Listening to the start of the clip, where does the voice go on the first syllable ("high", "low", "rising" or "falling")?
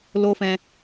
high